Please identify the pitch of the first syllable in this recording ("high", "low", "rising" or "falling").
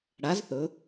rising